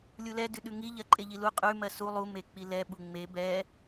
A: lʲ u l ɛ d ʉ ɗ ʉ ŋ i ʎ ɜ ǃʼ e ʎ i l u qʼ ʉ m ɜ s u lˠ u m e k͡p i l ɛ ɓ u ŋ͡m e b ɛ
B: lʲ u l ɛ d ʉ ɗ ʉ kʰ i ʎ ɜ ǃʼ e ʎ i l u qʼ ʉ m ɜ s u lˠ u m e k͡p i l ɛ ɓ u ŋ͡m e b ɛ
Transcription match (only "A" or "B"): A